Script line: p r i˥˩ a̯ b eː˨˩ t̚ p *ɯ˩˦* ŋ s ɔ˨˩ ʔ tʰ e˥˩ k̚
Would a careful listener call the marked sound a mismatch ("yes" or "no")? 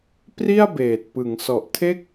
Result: no